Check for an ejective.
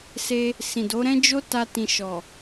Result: absent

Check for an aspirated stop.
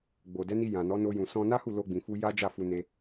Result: absent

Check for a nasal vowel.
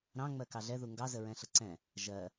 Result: present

